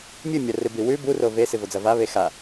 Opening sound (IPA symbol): mʲ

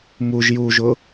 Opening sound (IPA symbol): m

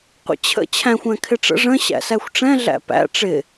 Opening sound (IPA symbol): qʷ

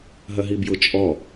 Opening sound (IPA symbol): ɦ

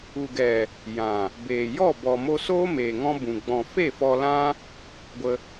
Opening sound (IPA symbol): u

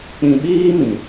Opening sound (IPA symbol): k͡p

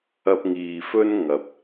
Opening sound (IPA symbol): ɐ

